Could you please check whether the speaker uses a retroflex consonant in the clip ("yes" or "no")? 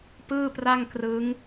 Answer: no